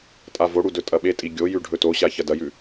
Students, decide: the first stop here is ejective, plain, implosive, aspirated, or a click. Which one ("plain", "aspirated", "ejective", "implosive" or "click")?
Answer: ejective